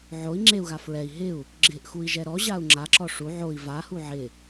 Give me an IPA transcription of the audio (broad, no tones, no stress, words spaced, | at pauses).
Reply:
ʕoi̯ ŋ͡ǁeu̯ɣa fɹɛi̯ ɦɪu̯ | ɡ͡ǁɪʔxui̯ʒɛ ɾɔʑau̯ ŋ͡ǁaǁɔ ʂu ʕoi̯ vahu ʕɪ